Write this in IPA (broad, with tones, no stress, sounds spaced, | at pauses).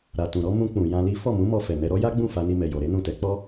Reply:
ɾ a˨ t ũ˨ ɾ ɔ˨˦ m ũ˧ k͡p ũ˨ j ã˧ l i˦ f ɔ˦˨ m ũ˨˦ m ɔ˧ f ɛ˨ n ɛ˧ ɾ ɔ˦ j a˦ ɡ͡b ũ˦˨ f a˧ n i˧ m ɛ˨ j ɔ˨ ɾ e˨˦ n ũ˦˨ t ɛ˨˦ k͡p ɔ˦